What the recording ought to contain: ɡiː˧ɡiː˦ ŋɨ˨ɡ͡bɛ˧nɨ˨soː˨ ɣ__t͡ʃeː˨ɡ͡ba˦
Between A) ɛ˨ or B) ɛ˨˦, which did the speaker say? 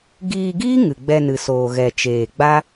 A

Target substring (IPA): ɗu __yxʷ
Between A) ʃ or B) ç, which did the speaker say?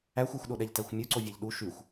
A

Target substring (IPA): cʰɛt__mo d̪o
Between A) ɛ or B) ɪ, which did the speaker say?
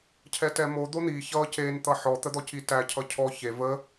A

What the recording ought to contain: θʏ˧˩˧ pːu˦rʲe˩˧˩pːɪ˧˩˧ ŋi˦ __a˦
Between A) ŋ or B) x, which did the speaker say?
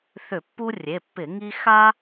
B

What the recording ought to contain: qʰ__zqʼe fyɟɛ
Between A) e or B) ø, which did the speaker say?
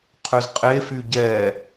B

